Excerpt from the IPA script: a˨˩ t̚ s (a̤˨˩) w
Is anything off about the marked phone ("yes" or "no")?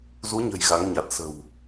yes